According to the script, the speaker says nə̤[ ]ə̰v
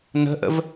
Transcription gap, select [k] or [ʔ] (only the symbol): ʔ